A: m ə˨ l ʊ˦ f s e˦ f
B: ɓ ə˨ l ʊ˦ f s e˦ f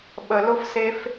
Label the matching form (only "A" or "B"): B